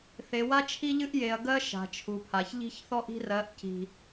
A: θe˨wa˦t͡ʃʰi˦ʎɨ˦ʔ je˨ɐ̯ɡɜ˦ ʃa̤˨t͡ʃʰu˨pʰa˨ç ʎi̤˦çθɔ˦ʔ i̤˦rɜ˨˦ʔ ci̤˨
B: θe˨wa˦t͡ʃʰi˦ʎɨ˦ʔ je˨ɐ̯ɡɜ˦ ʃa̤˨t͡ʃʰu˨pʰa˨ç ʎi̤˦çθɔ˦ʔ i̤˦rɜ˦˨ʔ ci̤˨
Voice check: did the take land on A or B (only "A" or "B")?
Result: A